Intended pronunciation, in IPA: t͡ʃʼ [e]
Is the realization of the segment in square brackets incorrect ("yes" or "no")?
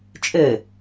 yes